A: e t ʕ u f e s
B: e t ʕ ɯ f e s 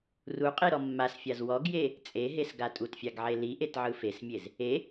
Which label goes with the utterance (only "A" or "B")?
B